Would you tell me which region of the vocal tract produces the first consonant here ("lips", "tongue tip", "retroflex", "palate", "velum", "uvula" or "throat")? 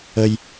palate